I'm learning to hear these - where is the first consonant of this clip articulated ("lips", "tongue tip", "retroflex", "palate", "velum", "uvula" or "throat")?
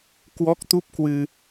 velum